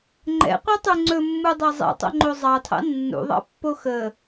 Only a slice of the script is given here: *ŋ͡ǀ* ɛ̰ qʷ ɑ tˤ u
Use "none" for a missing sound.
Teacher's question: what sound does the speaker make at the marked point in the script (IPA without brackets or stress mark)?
ŋ͡ǃ